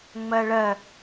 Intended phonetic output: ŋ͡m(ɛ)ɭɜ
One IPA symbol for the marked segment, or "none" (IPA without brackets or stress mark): ɜ